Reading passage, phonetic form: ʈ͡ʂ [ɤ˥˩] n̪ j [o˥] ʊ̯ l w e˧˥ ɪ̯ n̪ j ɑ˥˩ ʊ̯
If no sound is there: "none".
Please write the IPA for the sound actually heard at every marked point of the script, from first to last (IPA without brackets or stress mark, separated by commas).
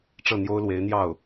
ɤ˥˩, o˥